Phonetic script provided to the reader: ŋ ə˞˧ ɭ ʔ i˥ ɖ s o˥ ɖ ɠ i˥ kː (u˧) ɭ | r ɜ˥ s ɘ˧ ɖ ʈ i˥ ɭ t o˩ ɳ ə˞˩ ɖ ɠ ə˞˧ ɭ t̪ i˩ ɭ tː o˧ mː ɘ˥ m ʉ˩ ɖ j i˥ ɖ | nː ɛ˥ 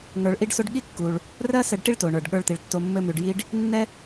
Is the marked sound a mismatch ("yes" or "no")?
yes